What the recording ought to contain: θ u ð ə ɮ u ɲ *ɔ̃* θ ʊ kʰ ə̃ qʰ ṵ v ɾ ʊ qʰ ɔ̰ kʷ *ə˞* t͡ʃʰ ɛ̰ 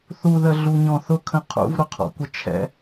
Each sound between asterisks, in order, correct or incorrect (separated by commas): correct, incorrect